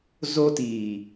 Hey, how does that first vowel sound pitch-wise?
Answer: high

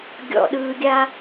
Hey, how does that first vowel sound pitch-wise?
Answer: low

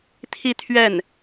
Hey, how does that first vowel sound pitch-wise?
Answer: falling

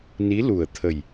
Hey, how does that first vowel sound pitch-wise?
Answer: rising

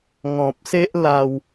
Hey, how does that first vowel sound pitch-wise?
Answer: low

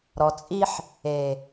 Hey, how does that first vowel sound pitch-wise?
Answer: low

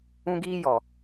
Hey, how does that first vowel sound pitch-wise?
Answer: high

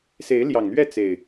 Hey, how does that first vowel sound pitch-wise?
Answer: rising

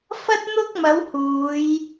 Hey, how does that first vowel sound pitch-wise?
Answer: high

